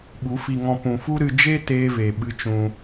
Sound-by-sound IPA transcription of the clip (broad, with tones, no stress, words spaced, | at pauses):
ɓu˨˦fi˧ŋɔ̃˧ pũ˨fu˦ɾɨ˧ d͡ʒe˦ teː˦ve˨ ɓɨ˦t͡ʃũ˧